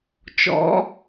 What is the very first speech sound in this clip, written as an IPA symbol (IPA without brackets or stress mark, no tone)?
t͡ʃ